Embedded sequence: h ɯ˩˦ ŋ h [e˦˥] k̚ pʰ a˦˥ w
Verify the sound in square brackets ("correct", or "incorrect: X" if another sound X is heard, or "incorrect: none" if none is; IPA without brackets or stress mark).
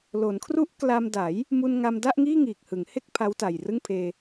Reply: incorrect: e˥˩